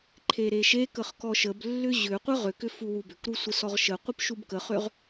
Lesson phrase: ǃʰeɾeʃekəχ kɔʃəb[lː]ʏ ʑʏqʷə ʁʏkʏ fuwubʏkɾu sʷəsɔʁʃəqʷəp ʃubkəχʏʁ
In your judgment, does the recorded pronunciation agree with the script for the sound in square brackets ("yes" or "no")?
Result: yes